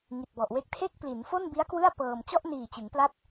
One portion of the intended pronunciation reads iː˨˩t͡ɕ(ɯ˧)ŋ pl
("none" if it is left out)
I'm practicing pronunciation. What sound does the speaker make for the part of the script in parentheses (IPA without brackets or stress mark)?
ɯ˩˦